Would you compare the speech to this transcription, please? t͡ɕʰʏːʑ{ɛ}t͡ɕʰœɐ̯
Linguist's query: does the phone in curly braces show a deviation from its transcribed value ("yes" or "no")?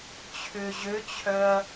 yes